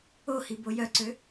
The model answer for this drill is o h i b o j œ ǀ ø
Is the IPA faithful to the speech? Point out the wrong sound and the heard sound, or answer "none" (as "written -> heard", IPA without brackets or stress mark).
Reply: none